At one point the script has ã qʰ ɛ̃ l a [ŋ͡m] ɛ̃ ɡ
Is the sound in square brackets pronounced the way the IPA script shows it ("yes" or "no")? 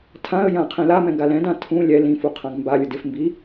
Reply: no